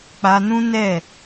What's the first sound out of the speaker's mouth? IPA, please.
k͡p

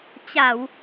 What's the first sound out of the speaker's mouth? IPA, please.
t͡ɕ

